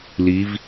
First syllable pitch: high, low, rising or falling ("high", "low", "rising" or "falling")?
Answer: rising